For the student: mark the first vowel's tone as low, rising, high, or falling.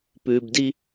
low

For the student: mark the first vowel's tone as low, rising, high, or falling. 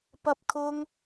high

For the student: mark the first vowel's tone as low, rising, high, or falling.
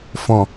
low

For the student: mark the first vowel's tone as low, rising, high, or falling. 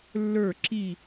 falling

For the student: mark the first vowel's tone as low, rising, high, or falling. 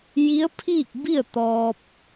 rising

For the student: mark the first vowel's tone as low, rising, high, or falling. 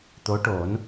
rising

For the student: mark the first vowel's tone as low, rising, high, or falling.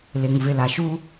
low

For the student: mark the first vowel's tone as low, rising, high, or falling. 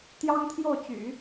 high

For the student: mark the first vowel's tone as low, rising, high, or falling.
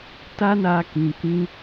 high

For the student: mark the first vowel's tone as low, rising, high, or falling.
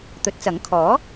rising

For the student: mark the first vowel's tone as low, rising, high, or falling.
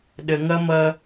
low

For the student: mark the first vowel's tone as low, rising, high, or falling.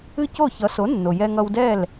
high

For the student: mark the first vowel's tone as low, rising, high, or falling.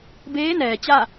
rising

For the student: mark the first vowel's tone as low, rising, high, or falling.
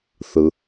low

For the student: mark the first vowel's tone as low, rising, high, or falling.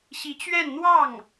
rising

